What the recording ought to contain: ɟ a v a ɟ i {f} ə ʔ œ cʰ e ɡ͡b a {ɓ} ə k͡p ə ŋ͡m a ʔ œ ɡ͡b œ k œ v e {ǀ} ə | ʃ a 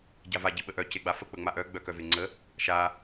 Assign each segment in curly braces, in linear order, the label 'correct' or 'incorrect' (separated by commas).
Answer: incorrect, incorrect, incorrect